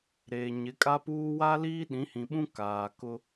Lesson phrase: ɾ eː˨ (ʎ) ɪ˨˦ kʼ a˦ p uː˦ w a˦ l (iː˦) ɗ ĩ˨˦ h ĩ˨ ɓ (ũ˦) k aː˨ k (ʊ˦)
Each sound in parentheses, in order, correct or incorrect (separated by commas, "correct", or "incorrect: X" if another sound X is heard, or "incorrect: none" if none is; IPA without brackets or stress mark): incorrect: ɲ, correct, correct, correct